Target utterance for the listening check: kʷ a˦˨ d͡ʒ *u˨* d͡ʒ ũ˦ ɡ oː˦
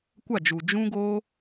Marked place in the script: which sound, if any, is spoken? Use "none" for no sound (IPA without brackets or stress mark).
u˨